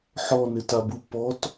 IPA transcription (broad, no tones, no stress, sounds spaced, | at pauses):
ħ ɔ n ɪ t a b u p ɔ t